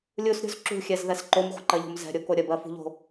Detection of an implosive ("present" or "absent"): absent